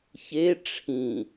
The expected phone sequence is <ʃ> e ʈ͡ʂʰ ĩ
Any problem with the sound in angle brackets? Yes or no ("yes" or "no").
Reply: yes